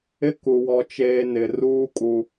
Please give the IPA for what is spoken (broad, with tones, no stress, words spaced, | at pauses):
ɪ˦ku˨ wɔ˦t͡ʃeː˦ nɪ˨ruː˦kʼu˨